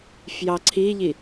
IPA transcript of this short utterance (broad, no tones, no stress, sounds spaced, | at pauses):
f j ɑ ǀʰ i ʎ i